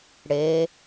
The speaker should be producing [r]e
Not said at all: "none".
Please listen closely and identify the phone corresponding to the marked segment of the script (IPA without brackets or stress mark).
ɽ